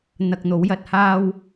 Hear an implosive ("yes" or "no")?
no